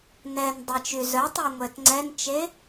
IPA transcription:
n ɛ n dˤ ɛ t͡ʃ y z œ tˤ y ŋʷ ɛ t ŋ͡ǀ ɛ n t͡ʃ e

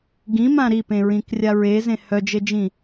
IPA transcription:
ɡ ĩ m ã ɾ i p ẽ ɹ ĩ k rʲ a ɹ e z ẽ h œ d͡ʒ e d͡ʒ ĩ

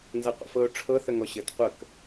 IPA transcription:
n z a qʷ a̰ f ɤ ʊ̯ ʈ͡ʂʰ ɤ θ ə ŋ ɔ ɕ ɘ t qʷ ə k

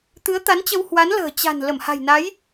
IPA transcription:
t̪ ɨ˨˦ ə̯ t̪ a˨˦ n t͡ɕ ə˧ w h w a˨˦ n l ə̤ː˨˩ t͡ɕ a̤˨˩ n l ə˧˩ m h a̤˨˩ j n a˨˦ j

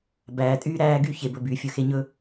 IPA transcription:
b æː˨ tʼ yː˦ ɾ æː˦ ɡ y˦˨ ç e˨ b ɵ˨ b yː˨ fʲ ɵ˦ x e˦ ɲ ɵ˦

